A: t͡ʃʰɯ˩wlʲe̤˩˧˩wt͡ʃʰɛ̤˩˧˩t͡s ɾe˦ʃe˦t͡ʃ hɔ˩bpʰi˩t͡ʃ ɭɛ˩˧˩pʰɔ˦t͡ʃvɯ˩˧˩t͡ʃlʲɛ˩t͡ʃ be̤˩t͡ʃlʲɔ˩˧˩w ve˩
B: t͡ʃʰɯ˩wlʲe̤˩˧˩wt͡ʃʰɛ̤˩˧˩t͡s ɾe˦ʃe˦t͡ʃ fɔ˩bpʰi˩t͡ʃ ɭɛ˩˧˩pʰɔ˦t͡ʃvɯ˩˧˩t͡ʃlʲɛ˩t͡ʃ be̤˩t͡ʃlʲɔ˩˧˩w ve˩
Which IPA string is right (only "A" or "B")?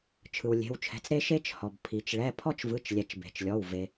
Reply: A